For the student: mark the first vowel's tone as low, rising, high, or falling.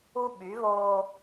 high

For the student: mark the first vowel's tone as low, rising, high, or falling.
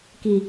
low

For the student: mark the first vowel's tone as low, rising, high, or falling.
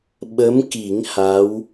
rising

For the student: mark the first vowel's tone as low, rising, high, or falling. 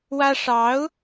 high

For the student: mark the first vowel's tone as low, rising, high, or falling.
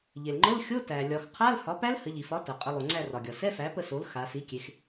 low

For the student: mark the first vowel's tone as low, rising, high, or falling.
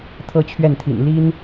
high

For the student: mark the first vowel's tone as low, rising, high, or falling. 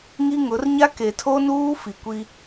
high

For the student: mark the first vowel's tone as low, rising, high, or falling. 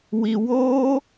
low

